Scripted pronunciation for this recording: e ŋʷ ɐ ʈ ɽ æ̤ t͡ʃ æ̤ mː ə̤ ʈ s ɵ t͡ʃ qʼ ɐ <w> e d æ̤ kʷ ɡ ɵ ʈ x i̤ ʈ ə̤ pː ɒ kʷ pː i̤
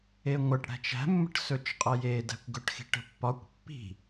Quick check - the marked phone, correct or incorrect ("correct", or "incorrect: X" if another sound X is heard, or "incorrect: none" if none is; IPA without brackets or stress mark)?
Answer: incorrect: j